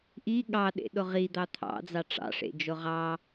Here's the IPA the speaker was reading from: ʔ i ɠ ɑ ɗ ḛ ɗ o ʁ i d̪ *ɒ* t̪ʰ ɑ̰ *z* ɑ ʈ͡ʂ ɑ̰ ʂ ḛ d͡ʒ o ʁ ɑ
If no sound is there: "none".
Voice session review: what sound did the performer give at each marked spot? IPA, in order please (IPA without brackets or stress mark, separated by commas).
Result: ɑ, d͡z